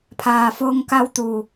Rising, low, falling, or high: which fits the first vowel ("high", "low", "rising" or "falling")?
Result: low